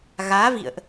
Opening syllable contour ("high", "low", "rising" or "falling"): rising